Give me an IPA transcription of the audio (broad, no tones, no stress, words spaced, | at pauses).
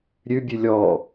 ɾʲʉ bʲʉlʲɔ